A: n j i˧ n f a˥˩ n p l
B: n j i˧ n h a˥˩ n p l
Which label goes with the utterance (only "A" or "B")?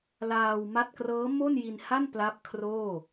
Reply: B